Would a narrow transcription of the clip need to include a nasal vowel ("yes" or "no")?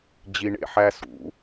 no